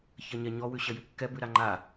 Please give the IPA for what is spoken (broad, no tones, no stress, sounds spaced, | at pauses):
ç ɐ ɲ ɛ ɲ ɔ w ʉ ɕ ɐ j ʉ kː ɛ b ʉ ɾ a ŋ͡ǃ a